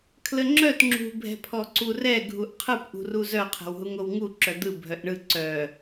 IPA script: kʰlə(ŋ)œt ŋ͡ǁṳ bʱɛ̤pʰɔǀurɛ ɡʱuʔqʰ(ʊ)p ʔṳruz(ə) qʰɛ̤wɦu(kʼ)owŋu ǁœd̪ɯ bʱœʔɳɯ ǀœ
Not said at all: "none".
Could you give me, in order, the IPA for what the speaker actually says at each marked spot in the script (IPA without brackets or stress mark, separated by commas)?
ŋ͡ǁ, ɯ, œ, ŋ